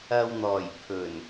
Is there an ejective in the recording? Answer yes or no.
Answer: no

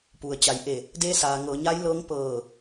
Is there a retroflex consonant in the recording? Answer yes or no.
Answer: no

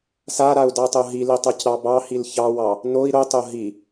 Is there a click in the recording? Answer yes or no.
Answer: no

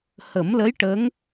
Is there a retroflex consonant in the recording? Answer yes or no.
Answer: yes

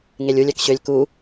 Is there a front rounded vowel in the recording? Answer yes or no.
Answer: yes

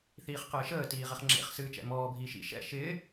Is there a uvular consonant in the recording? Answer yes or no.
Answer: yes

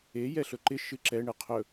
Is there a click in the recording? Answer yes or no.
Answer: yes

